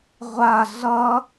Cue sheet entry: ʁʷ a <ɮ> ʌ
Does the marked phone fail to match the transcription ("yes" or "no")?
no